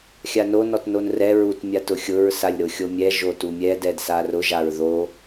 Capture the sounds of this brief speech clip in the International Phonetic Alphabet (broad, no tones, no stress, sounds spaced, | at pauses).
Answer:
xʲ a n o n ɔ t n o n r ɛ ɹ u t mʲ a t ʊ xʲ ʊ ɹ s a lʲ ɾ ʊ xʲ o mʲ ɛ ʒ o t u mʲ ɛ d ɛ d s a r ʊ ʒ a ɹ ð o